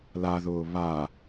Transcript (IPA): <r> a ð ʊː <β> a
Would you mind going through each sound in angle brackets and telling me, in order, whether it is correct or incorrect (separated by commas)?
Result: incorrect, correct